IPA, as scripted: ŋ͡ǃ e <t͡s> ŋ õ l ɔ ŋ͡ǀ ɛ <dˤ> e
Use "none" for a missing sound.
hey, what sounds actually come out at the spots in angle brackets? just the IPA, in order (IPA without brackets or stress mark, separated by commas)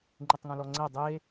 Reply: tˤ, dˤ